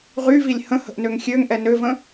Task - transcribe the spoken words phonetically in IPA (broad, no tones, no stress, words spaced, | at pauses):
ʁyvilʲ hə̃hə̤ʔ nøŋxʲøŋʔɛ nøvə̃